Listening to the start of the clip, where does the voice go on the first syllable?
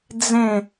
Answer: falling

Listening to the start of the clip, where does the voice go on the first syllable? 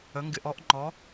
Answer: rising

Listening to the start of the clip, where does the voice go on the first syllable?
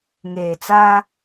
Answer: low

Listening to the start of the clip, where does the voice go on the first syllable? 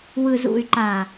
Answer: low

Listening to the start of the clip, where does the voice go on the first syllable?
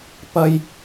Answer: high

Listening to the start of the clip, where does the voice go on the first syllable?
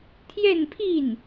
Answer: falling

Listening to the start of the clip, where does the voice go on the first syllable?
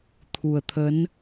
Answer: low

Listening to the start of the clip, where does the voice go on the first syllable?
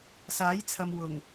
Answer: rising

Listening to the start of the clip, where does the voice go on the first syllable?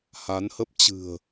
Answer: rising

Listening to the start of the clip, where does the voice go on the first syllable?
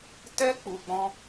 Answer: high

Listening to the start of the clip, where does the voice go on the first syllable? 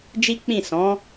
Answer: high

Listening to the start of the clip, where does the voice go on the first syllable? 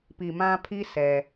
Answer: low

